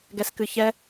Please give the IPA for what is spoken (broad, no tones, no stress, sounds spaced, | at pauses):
ɡ ɛ s k ɨ ç ɛ